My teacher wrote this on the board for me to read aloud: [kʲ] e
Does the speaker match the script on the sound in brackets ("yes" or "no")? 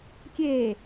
yes